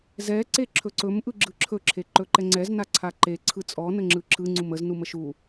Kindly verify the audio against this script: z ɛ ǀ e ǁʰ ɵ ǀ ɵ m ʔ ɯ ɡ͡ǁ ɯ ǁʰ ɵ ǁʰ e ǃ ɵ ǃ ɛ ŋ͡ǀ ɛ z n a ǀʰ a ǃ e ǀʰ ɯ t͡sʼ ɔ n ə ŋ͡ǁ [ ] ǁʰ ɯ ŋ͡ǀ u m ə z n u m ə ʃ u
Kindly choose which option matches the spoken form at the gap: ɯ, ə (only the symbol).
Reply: ɯ